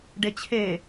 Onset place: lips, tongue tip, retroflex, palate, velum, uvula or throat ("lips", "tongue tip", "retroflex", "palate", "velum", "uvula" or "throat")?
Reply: retroflex